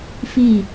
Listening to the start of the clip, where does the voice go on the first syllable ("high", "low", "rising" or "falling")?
falling